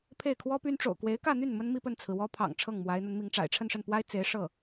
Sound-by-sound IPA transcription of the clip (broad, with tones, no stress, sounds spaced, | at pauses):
pʰ e˥˩ ɪ̯ kʰ w ɔ˥ p y˥ n ʈ͡ʂ o̰˨˩ ʊ̯ k w e˧˥ ɪ̯ k ä˥˧ n̪ y˥˩ n m ə˥ n m i˥˧ p ə˥˩ n t͡sʰ ɹ̩˩ w ɔ˥ pʰ ɑ̰˨˩ ŋ ʈ͡ʂʰ ɤ˥˩ ŋ m w a˧˥ ɪ̯ n̪ ə˧˥ n m i˧˥ ŋ ʈ͡ʂ a̰˨˩ ɪ̯ ʈ͡ʂʰ ə˥˧ n ʂ ə˥˩ n p w a˥ ɪ̯ t͡s e˧˥ ɪ̯ ʂ ɤ˥˩